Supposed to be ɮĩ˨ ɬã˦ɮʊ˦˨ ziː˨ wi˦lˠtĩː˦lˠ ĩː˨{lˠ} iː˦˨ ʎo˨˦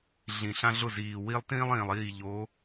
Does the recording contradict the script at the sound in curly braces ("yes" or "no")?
no